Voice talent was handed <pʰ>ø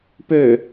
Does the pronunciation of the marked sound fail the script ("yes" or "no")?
yes